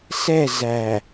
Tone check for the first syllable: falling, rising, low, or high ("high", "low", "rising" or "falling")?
falling